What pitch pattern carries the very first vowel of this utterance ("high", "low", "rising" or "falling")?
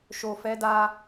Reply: low